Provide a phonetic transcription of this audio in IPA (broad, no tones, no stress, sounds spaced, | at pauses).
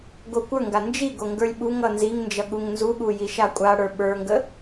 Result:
ɡ o kʷ ə˞ ŋ ɡ a n d͡ʒ i ɡ o ŋ ɡ ə˞ lʲ ɓ u ŋ ʌ n z i ŋ n d͡ʒ ʌ ɠ u ŋ n z u ɠ u j i ʃ a kʷʼ a ɽ ə˞ ɓ ə˞ ŋ ɡ ə